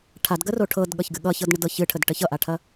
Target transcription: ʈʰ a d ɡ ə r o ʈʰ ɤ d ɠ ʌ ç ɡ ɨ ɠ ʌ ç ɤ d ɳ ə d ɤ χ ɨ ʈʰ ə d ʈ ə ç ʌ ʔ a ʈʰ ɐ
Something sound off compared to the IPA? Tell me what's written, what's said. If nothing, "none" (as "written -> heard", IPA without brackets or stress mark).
χ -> ç